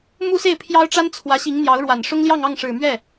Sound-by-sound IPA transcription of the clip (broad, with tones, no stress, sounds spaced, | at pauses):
m u˥ s e˥˩ ɪ̯ pʰ j ɑ˥ ʊ̯ ʈ͡ʂ a˥ n t͡sʰ w ä˧˥ ɕ i˧˥ ŋ n̪ j ɑ˧˥ ʊ̯ ɻ w a˨˩ n ʂ ʊ˥ ŋ l j ɑ˥˧ ŋ ɑ˥˩ ŋ ʂ ɻ̩˨˩ m ɥ ɛ˥˩